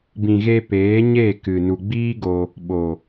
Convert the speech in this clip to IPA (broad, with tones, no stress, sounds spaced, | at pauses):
b ĩ˨ ɣ e˧ p eː˨˦ ɲ e˦˨ k ɨ˨ n u˨ ɡ͡b iː˦ ɡ o˧ | ɓ o˨